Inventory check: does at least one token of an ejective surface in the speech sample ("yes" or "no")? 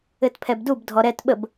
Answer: no